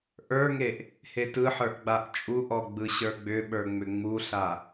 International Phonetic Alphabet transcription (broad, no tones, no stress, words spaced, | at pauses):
ʔə˞ŋeʔ | hetɯħə˞ʔ ɡ͡baʔt͡ʃʼuʔɔ ɡ͡bɯɕə˞ɡ͡bʏɓə˞ ŋ͡mʏŋ͡muɬa